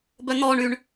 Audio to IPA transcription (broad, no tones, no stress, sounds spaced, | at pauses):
b œ n̪ ɔ ɳ y ɳ